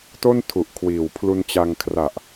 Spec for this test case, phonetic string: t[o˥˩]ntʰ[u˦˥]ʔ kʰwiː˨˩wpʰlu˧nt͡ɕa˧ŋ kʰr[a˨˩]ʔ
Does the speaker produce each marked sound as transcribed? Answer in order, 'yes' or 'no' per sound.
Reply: yes, no, yes

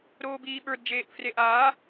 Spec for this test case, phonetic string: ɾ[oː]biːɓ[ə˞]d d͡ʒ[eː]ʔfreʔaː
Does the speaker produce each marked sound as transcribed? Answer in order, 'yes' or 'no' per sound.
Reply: yes, yes, yes

